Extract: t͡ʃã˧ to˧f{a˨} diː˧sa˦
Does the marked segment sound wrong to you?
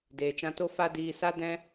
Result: yes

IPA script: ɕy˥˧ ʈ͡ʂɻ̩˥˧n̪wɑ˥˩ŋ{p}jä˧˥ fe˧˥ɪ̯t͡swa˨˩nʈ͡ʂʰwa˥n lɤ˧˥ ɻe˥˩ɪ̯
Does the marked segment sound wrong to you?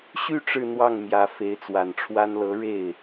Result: yes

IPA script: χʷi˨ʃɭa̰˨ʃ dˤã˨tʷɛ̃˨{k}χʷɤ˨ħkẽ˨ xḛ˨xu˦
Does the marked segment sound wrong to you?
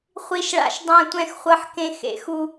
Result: yes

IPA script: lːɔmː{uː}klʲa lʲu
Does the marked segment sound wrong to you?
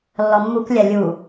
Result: yes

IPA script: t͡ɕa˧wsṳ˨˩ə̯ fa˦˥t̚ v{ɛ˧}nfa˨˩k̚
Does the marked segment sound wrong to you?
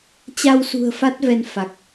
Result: no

